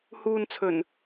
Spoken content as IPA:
h uː˧ n t͡sʰ ɵ˨˩ n

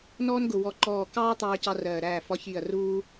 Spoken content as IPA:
n ɔː˥ n ɡ ʊ˧˩ w ɔ˧˩ ǃ ɔː˧˩ k ɑː˥ t̪ ɑː˥ c ɑ˥ r ɜː˧˩ ɾ æː˥˩ f ɒ˥ ç iː˥˩ ɐ̯ r uː˥

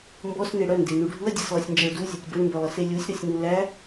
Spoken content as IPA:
m b ɔ s n e ɽ œ n d e n u ɖʱ u ɐ̯ dʲ e s lˠ œ sʲ n d͡ʒ æ ɭ d u zʲ œ tʲ b ɤ ɳ m b œ lˠ ɤ s e lʲ u sʲ ɾ ɔ sʲ n u l æ

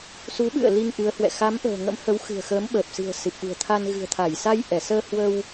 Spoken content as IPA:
s u˨˦ ɓ ɨ̰˧˨ ə̯ l i˧ ŋ ʔ ɨ˨˦ ə̯ h w ɛ̰˧˨ x a˨˦ m ʔ ə̤ː˨˩ ŋ ə̰˧˥ m h ə˨˦ w x ɨ̤˨˩ ə̯ x əː˨˦ m ɓ əː˨˩ p̚ s ɨ̤˨˩ ə̯ s ɨ˨˩ p̚ ɗ ṳ˨˩ ə̯ t̪ʰ a˧ n ɣ ɨ̤˨˩ ə̯ t̪ʰ a˧˩ j s a˧ j ʔ ɛ˧˩ s əː˧ h w ə˧ w

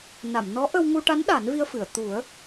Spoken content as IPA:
n a˨˩˨ m n ɔ˧˥ ʔ ə˧ w ŋ u˧ ʈ a˧˥ n ɗ a˨˩˦ n v i˧ ə̯ f ɨ˨˩˨ ə̯ t̪ u˨˩˦ ə̯

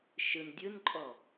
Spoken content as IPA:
ʃ ɯ n dʲ ɯ n ǃʼ ɔ

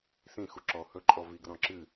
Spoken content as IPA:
s ĩ x u ǁ ɔ h ɵ ǃʼ ɔ v i ɡ r ɔ̃ ǁ ɨ

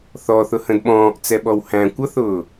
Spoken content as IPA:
θ ɔ θ ʊ h ə̃ d ɓ ɔ̃ː ʔ t͡s ɛ ɓ ɔ w h æ̃ kʷ ʌ θ ʊː

